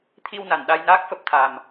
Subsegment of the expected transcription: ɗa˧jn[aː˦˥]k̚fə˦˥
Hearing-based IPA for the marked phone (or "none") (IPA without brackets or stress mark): aː˦˥